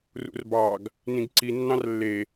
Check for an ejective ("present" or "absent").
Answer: absent